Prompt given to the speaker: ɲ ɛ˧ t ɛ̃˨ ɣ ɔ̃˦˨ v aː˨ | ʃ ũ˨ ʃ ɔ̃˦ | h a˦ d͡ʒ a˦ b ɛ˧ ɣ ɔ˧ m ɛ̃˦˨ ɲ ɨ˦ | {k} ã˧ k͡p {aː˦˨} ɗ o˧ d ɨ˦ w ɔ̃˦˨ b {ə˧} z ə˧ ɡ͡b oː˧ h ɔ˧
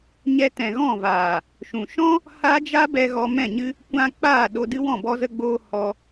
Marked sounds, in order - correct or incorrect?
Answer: incorrect: kʷ, correct, incorrect: ɔ˧

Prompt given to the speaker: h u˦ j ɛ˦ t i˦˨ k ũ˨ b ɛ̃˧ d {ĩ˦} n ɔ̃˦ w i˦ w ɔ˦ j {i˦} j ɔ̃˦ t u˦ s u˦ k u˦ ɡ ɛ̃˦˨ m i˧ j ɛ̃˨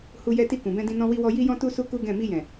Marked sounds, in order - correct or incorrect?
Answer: incorrect: ĩ˧, correct

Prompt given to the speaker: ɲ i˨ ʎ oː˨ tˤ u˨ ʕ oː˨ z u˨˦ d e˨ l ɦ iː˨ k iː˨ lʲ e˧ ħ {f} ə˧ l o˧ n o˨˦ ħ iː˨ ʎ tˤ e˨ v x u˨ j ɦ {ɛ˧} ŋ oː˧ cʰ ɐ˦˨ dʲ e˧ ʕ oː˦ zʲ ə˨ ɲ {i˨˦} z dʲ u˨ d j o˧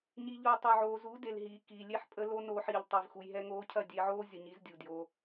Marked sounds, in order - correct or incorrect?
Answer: incorrect: pʼ, correct, correct

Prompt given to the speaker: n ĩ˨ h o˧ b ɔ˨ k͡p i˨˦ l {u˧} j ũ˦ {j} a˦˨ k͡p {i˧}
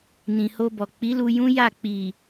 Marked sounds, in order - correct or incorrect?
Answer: correct, correct, incorrect: i˨

